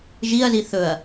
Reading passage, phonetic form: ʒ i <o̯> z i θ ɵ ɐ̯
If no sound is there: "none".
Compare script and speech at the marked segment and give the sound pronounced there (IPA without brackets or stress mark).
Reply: ɐ̯